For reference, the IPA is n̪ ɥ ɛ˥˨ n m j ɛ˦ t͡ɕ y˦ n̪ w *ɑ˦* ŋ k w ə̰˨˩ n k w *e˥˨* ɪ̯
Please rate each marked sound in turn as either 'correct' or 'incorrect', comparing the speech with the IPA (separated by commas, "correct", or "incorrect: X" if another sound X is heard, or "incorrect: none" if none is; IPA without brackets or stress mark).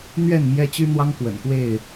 correct, correct